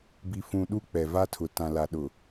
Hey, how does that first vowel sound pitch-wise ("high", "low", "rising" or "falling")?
low